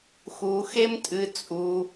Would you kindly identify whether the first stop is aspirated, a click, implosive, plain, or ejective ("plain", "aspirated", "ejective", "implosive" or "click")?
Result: ejective